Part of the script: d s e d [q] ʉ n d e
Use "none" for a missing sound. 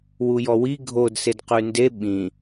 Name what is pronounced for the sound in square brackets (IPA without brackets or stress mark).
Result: q